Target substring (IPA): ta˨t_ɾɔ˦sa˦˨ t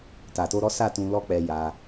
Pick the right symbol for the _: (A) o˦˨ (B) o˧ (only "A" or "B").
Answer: B